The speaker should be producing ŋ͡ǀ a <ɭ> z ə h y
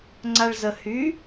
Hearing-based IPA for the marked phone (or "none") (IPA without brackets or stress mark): ɭ